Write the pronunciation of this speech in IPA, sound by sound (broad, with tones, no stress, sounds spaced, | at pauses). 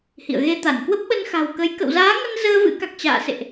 h ḭ˧˨ ə̯ ɣ e˧ t̪ a˧˩ n k w ə˦˥ p̚ ɓ ə˧ n x a̤˨˩ w k ə˨˦ j k ə̰˧˨ w z aː˨˦ ŋ ə˧ n z əː˧ v ɨ̰˧˥ k a˨˩ k̚ t͡ɕ a̰ː˧˨ s ḛ˧˨ ʔ